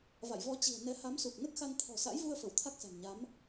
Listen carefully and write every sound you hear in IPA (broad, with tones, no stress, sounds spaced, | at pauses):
v a̰˧˨ j v ɔ˧ t͡ɕ i̤˨˩ ə̯ n ɛ˨˦ h a˨˦ m s u˨˩ k̚ n ə˦˥ t̚ x a˧ n t̪ʰ ɔ̤˨˩ s a̰˧˥ j v u˧ ə̯ f ə˧˩ w t̪ʰ a˦˥ k̚ s a̤˨˩ n ɲ a˨˦ m